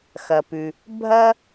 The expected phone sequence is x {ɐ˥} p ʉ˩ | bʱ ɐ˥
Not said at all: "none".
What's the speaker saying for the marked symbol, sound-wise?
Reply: ɐ˩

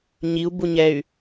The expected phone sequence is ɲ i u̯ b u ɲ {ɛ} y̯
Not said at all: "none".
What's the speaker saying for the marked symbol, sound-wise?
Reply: ɛ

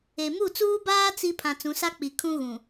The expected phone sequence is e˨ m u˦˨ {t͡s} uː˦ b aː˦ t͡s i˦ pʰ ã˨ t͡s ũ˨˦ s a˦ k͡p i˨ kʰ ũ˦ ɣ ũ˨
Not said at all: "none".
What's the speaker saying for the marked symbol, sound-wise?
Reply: t͡s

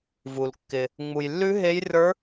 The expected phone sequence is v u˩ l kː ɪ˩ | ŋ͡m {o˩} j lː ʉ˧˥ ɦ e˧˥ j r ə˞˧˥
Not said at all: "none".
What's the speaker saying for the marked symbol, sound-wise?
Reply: u˩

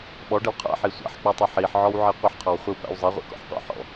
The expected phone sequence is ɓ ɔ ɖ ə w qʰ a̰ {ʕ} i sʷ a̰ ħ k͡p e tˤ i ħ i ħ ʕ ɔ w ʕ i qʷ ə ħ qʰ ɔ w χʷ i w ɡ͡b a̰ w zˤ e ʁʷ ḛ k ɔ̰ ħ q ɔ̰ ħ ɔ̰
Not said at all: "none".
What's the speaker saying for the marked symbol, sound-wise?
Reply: ħ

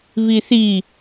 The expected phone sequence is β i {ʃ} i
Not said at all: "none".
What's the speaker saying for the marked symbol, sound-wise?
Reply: θ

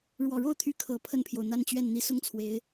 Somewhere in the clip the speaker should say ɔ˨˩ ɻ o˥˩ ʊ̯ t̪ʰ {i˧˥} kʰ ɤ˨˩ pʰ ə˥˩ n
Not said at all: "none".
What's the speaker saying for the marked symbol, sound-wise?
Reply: y˧˥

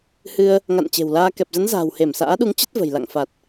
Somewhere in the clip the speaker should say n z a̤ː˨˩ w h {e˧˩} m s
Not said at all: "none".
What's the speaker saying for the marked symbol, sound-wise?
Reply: e˧˩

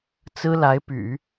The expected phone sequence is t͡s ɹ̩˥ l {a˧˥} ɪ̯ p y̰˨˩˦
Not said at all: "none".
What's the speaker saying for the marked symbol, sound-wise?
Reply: a˧˥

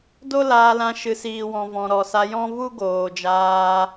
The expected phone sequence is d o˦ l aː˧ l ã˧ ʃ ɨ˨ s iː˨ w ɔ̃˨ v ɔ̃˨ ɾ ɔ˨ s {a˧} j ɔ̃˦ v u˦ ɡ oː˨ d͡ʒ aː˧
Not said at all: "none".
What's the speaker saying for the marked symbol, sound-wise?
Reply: a˧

